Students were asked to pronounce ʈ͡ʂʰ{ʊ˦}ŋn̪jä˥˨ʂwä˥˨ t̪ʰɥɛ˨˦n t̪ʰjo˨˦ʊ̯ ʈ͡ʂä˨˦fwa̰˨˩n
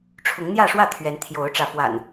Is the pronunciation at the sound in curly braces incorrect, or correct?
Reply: incorrect